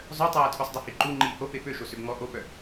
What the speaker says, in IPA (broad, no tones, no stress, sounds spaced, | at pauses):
zˤ œ tˤ aː tʰ u sˤ dˤ y h i ǃ u ŋ͡ǃ iː h o p e p ø ʃ o s ø b ŋ ɔ ʔ o p œ